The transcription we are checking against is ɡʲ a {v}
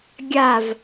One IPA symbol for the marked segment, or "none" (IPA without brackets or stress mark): v